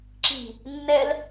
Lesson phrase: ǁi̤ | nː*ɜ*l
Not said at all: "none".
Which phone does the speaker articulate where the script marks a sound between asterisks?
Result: ɛ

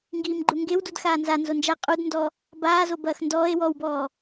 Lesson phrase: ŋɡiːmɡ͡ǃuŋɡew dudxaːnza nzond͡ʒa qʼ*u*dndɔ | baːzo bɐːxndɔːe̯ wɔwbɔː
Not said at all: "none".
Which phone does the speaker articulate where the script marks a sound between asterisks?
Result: u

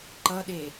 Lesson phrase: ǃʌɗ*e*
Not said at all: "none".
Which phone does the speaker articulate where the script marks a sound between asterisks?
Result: e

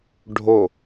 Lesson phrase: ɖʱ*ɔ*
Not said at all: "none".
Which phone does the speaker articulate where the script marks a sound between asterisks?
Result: o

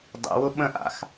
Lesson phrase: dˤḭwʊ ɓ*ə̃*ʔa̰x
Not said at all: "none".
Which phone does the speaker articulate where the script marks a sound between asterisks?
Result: ə̃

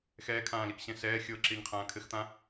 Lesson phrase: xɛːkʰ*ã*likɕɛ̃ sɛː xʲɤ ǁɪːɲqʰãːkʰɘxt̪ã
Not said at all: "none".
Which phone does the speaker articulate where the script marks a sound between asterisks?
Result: ãː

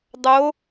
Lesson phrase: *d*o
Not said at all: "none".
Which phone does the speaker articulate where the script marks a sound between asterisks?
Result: dˤ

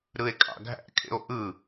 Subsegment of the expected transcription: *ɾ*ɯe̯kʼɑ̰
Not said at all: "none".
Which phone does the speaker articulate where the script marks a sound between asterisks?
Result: ɾ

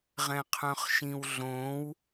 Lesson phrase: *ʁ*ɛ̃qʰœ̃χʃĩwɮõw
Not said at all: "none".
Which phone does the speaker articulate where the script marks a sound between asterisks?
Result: ʁ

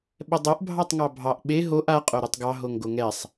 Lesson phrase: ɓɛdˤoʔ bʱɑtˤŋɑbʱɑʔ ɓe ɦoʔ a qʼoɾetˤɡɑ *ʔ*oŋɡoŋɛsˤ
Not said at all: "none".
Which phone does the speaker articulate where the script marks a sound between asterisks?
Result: ɦ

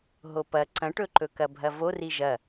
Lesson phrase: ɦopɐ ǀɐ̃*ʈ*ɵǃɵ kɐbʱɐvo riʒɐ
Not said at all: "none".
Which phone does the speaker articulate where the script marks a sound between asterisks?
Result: ʈ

